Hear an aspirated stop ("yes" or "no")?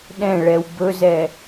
no